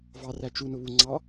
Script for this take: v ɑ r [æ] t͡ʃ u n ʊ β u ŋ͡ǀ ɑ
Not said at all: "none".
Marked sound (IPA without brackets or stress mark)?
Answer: æ